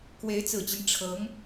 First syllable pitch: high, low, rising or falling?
rising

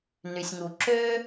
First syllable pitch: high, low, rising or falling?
low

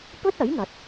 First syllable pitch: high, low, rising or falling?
high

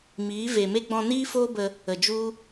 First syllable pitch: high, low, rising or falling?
rising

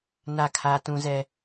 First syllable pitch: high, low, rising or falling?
falling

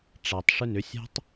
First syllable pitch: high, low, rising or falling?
low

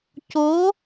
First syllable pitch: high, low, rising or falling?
rising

